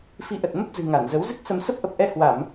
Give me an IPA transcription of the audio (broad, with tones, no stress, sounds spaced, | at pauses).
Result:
f i˧ ʔ ə˨˩ t̚ m ə˦˥ p̚ z ɨ̤˨˩ ŋ a˧˩ n z ə˨˦ w z ɨ˦˥ k̚ s ə˧ m s ə˦˥ p̚ ʔ ə˨˩ p̚ ʔ ɛ˧ h w a˧˩˨ m